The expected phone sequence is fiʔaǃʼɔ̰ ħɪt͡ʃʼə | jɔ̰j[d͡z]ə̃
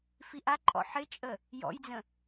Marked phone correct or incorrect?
correct